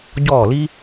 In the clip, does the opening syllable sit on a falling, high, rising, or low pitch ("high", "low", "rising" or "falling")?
falling